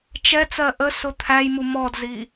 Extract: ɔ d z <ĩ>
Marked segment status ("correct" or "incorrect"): incorrect